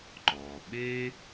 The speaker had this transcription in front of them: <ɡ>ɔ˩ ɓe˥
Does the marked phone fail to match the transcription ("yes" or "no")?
yes